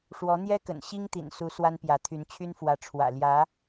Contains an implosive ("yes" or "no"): no